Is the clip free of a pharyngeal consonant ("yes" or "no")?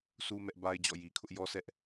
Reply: yes